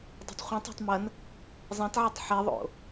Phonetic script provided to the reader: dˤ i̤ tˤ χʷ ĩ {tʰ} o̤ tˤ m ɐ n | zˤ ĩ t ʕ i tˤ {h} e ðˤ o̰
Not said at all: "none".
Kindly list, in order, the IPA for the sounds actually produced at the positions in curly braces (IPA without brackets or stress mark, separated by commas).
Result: tˤ, ħ